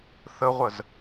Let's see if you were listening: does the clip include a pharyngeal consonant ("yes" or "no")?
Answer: no